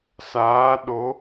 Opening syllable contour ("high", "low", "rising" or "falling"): rising